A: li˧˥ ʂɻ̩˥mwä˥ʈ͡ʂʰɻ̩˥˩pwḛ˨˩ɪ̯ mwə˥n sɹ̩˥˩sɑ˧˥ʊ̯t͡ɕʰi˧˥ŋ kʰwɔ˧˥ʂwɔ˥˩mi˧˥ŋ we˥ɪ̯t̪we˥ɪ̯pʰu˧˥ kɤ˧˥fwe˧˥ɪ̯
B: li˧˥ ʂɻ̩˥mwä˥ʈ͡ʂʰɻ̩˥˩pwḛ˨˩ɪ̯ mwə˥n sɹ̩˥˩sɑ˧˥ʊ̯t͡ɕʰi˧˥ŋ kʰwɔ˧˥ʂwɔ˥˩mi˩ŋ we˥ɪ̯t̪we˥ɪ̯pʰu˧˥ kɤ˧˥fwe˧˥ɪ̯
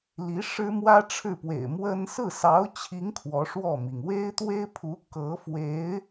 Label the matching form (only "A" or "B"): B